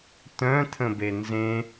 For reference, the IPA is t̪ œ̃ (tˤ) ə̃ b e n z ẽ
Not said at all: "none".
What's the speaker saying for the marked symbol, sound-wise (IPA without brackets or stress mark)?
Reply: t̪ʰ